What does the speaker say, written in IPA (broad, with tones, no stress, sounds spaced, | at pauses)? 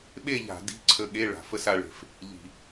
ɓ e˥˧ ʎ a̤˧˩˧ d i̤˧˥˧ ǀʰ ə˧ ɠ e˧˥˧ ɭ a̤˩ f ə˥˧ s a˧ ɭ e̤˩ f | ʎ i̤˧˩˧